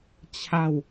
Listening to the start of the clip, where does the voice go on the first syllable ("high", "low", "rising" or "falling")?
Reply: falling